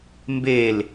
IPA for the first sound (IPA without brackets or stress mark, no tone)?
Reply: m